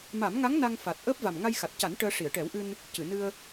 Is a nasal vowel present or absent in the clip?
absent